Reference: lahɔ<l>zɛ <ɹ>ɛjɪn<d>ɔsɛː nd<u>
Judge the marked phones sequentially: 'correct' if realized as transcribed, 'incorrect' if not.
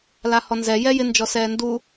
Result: incorrect, incorrect, incorrect, correct

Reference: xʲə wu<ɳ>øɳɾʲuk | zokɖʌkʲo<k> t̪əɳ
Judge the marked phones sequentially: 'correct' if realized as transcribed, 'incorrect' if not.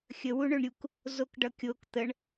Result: correct, correct

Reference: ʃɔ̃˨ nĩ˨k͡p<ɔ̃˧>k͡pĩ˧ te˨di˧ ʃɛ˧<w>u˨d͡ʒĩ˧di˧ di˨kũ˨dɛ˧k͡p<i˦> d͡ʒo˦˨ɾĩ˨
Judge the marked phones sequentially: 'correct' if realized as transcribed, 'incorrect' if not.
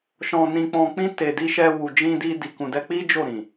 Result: incorrect, correct, correct

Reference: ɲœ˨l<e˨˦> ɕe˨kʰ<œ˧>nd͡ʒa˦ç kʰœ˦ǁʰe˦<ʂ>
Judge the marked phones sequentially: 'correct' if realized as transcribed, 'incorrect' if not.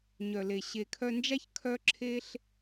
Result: incorrect, correct, incorrect

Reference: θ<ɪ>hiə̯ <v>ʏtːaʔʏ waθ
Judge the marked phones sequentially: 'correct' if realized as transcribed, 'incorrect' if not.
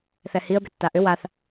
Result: incorrect, incorrect

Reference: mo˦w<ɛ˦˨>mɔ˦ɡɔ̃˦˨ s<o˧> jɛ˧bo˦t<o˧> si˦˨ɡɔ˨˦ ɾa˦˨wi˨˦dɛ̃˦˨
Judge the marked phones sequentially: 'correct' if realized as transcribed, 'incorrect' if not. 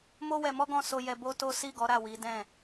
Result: incorrect, correct, incorrect

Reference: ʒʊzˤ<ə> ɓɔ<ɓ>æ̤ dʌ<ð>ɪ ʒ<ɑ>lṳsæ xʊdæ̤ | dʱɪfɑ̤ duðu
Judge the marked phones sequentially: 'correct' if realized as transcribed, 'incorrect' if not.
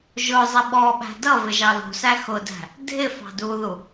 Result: correct, correct, incorrect, correct

